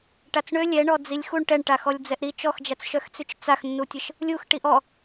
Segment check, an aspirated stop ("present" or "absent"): absent